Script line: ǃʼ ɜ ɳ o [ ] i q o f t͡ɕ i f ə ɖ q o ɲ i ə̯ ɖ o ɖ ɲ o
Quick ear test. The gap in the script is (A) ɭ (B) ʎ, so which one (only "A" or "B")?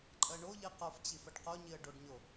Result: B